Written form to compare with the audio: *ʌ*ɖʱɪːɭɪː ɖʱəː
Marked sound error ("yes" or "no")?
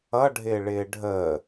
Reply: no